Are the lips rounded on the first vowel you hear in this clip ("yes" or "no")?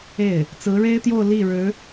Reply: no